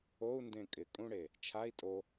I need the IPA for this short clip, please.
o u̯ n d ẽ kʼ ɪ kʼ ũ ɽ e | t͡ʃʰ a i̯ tʼ o

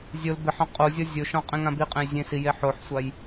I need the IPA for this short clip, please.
zʲ o l b ɪ ħ ɔ̃ qʼ o zʲ ɔ zʲ ʊ ʃ ɔ̃ qʼ ẽ ŋ ã b i qʼ ẽ j zʲ ẽ s i j e ħ o ħ sʷ a j

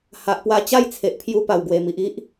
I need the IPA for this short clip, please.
h a˨ ʔ p w a˧ t͡ɕ a˥˧ j t͡sʰ e˨ ʔ pʰ j u˧ p a˨˩ w ɡ w e˨˩ m i˨ ʔ i˦ ʔ

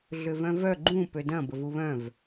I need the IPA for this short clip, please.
ɮ ʏ v œ̃ v œ ɡ͡ǃ ũ p ø d ɐ̃ b ə v u β œ̃ v

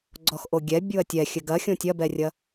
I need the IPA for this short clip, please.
ɡ͡ǀ ɔ x ʔ o ɡʲ ɛ bʲ u ɐ̯ tʲ ɛ xʲ ɘ ɡ ɐ xʲ õ tʲ ɐ b ɛ rʲ ɐ

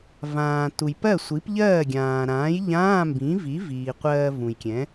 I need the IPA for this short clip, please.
v ãː˩ t u˩ j p ɜ˥˩ sʷ i˩˥ p ʎ ɜː˥˩ ɡʲ ãː˩ ɾ ãː˩˥ j ʎ ãː˧˥˧ m b ĩ˩˥ v i˩˥ v iː˩ qʷ ɜː˧ v ũ˩ j kʲ ɛ̃˩˥

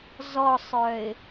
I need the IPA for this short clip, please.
z ɔ sˤ œ ɪ̯

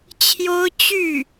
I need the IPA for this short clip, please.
t͡ɕʰ j o˥ ʊ̯ t͡ɕ y˥˩

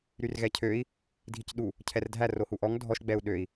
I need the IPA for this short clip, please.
ɾ y r ɣ ɛ cʰ ø i̯ | dʱ i c ɗ u | cʰ ɛ r dʱ æ r o h u ʔ ɔ ŋ dʱ ɔ ʃ ɡ͡b ɛ u̯ ɗ ø i̯

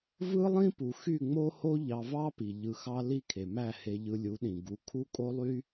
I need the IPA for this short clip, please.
v ɯ˦ lˠ ĩ˦ p u˨ x y˦˨ ŋ͡m o˦ h o˦ ʎ ɑ˧ v ɑ˦ p i˨ ʎ ɯ˧ x ɑ˦ l i˦ kʰ e˨ m æ˦˨ h e˧ ʎ ɯ˧ lʲ u˨˦ ɗ ĩ˨ ɡ u˧ kʰ u˦ kʼ o˦ lˠ y˦

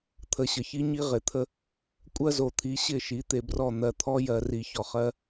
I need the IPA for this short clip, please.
t̪ʰ ə˨ ɕ ə˨ ç i˦ ɲ i˦ ʁ ɪ˨ t̪ʰ ə˦ | kʷʼ ɜ˦ z o˨ t̪ʰ i˨˦ ɕ ɪ˦˨ ʃ i˨˦ t̪ e˨ b r ɔ˦˨ n̪ ɜ˨ t̪ʰ ɔ˦ j ɜ˨ r i˨ ç ɔ˨ χ ɜ˦

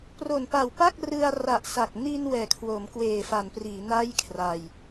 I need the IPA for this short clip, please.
p r o˨˩ n p a˨˩ w p a˥˩ k̚ r ɯ˧ a̯ r a˨˩ ʔ s a˨˩ k̚ n i˧ n w ɛː˨˩ kʰ w o˩˦ m k w eː˨˩ f a˩˦ n p r iː˩˦ n a˥˩ j kʰ r a˧ j

